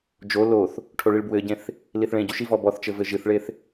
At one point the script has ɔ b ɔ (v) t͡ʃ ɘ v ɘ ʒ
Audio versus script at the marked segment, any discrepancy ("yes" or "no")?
yes